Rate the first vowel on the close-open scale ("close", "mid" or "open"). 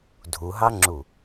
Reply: close